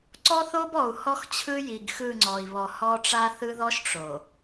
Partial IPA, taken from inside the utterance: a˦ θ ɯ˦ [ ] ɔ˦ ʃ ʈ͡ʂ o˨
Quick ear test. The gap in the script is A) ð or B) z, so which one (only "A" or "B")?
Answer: A